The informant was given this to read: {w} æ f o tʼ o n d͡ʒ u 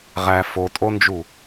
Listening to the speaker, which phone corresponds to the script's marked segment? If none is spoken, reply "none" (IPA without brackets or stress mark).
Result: ʁ